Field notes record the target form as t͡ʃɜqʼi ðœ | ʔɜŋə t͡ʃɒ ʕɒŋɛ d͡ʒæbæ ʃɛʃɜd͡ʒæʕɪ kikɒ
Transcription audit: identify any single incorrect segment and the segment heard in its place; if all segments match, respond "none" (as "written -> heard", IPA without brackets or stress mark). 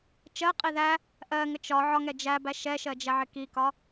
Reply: œ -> æ